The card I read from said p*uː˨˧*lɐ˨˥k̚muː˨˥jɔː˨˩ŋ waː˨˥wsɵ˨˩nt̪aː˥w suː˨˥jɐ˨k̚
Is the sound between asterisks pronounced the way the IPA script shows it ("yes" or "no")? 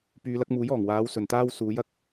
no